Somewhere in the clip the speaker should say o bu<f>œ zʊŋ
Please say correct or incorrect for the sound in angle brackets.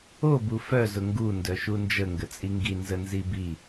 correct